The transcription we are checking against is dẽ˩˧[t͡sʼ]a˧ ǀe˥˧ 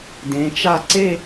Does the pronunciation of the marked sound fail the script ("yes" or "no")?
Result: yes